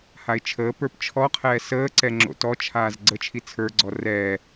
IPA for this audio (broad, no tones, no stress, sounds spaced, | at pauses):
h a ɪ̯ t͡ʃʰ əː p ə˞ p t͡ʃʰ ɔ qʰ ɛː s əː ǀ ɛ ŋ͡ǁ o̰ t ɔ t͡ʃʰ aː z ɡ͡ǀ ə t͡ʃʰ i t͡sʰ ə˞ ɡ͡ǀ ɔ r ɛː